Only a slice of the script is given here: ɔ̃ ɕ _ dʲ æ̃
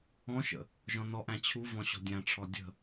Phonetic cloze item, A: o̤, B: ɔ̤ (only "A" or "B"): B